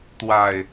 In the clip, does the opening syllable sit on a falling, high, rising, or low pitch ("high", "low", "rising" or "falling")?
low